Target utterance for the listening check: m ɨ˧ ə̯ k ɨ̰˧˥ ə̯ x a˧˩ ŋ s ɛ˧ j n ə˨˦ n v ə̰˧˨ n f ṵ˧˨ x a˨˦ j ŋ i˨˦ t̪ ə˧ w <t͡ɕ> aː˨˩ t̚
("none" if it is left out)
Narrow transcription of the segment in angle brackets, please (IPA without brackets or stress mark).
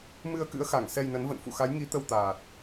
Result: t̪